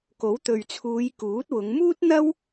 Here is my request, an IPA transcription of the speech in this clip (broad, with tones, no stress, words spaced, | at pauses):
ko˨˥wt̪ɵ˨ɥt͡sʰuː˨˧j kuː˨˥t̚wʊ˨˧ŋ muː˥t̚n̪ɐ˥w